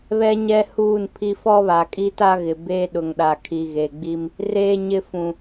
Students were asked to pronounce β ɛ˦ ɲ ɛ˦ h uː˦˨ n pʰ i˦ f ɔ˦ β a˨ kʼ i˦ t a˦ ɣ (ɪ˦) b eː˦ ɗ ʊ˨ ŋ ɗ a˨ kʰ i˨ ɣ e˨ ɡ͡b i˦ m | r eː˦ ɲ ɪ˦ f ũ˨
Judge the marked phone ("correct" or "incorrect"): incorrect